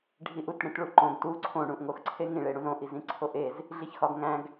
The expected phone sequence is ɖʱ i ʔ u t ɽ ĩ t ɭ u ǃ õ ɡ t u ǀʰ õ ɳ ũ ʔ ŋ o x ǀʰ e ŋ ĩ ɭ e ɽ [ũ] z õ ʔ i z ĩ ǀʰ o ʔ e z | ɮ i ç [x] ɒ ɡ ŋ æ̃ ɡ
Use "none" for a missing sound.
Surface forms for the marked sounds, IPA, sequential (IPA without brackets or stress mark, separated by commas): ũ, x